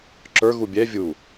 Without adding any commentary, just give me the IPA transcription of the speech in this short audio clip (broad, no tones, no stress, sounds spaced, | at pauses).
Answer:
ǁ ə˞ ɣ u bʲ ɛ vʲ u